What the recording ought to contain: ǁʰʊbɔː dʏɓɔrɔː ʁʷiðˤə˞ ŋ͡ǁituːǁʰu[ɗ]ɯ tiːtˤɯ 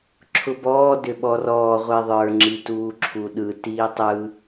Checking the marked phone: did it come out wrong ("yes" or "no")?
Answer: no